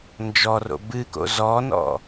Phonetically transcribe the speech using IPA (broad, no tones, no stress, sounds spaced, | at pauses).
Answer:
n d͡ʒ ɔ r o̰ b ɨ k o̰ z ɔ n ɔ̰